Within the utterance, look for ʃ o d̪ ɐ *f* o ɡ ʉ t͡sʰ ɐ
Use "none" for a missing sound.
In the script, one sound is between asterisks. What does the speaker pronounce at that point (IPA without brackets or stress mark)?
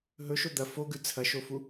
f